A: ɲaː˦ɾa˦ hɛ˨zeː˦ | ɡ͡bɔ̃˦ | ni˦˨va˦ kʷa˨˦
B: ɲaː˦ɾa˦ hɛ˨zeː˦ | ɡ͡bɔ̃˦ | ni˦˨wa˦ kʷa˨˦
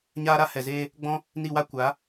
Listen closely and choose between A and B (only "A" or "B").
B